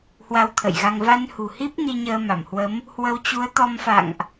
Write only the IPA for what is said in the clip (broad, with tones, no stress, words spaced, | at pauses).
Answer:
hwa˧wt̪ʰə̰˧˨jɣa˧ŋ va˧nhṳ˨˩hi˦˥p̚ ni˧ɲəː˧ma˧˩mhwə˨˦m | hwə˧wt͡ɕu˨˦ə̯t̪ɔ˧mfa̰˧˨ŋʔ